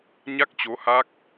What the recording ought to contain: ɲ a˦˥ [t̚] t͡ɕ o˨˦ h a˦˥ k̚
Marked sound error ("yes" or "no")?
yes